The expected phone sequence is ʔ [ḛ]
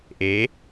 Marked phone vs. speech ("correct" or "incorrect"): incorrect